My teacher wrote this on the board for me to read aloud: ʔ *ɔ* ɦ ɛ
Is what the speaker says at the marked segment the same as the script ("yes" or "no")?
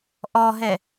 yes